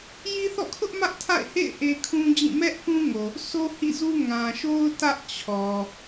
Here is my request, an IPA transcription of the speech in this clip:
j i˦ θ ɔ̰˦˨ kʰ ʊ˦ ʔ m ä˦ ʔ tʰ a̰˦˨ ɪ̯ h ḛ˦˨ ɪ̯ ʔ e˦ kʰ ũ˦ d͡ʑ ĩ˦˨ m ɛ˦ ʔ k ũ˦ ŋ o˨ | sʰ o˦ h ḭ˦˨ z u˦ ŋ ã˨ ʃ o˦ ʊ̯ t ä˦ ʔ t͡ɕʰ ɔ˨

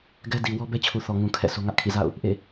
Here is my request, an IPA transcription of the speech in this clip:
ɡ ɛ˦ d i˨ w ɔ˦ b ɛ˦ t͡ɕʰ u˨ θ ɔ˨ ŋ ũ˨ kʰ ɛ̰˦˨ sʰ o˦ ŋ ä˦ ʔ kʰ ḭ˦˨ z a̰˦˨ ʊ̯ | ʔ ḛ˦˨

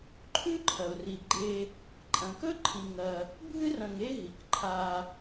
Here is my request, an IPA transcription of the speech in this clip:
ǃʰ ʉ˦ ǃʰ ɐ˩ ʊ̯ r i˩ ɡ͡ǃ e˨ | ǃʼ ɐ̃˩ k ɵ˦ ǃʰ i˨ ŋ ɐ˨ | bʱ ɨ˦ r ɐ̃˨ ŋ e˦ ɦ i˩ k ǃʰ a˨

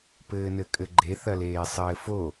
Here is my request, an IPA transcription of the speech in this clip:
p ɘː n ɘ kʼ ɘ ɡ͡ǃ e θ ɐ l eː sˤ ɘː f o

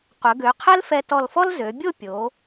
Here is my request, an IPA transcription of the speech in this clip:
qʷ ə˩˧ ɡ ø˩˧ qʰ ɛ˥ l f ɛ˧ t ɔ˧˩ l f ɔ˥ l z ø˩˧ bʲ o˥˧ pʲ o˩˧

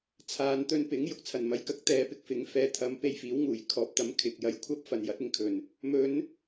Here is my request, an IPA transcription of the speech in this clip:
t͡sʰ aː˨ n t̪ ɵ˧ n p ɪ˨˥ ŋ j ʊ˨ k̚ t͡sʰ ɐ˨˩ n m ɐ˨˧ j k ɐ˧ k̚ t̪ ɛː˨˧ p ɪ˨ k̚ f ɪ˨˥ ŋ f ɛː˨˥ t̪ʰ ɐ˨˧ m p e˧ j f iː˨˥ w ŋ uː˨˩ j kʰ ɔː˨˥ p̚ t̪ ɐ˨˥ m kʰ ɪ˨ k̚ j ɐ˧ j kʷʰ ɐ˥ p̚ f ɐ˨ n j ɐ˨˥ t̚ ɪ˧ ŋ kʰ ɵ˨˩ n | m ɵ˨˧ n

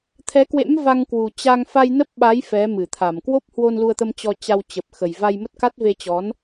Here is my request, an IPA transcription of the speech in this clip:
t̪ʰ ɛ˨˦ k w ḛ˧˥ m v a˧ ŋ k w u˨˩ t͡ɕ a˧ ŋ f a˧ j n ə˦˥ p̚ ɓ a˨˦ j f ɛ˨˦ m ɨ˧˩ t̪ʰ a˧˩ m k w o˦˥ p̚ h w o˧ n l u˧ ə̯ t̪ ə˧ m t͡ɕ ɔ˧ t͡ɕ a˧ w t͡ɕ ə˨˩ p̚ x ə˨˩ j v a˧ j m ə˦˥ t̚ k a˦˥ t̚ v e˧ t͡ɕ ɔ˨˦ n

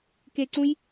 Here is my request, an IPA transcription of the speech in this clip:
k e ǀ ũ j

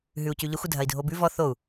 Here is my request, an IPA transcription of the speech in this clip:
ɦ ʉ u̯ c ʉ ʎ ə xʷ ə dʱ ɐ i̯ dʱ o b ʉ v ɔ θ o u̯

